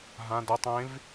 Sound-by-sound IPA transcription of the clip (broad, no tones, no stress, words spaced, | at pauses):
ɦãd ɤtˤ ẽv